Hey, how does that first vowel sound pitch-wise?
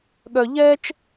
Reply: low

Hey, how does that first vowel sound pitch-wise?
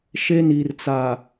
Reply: high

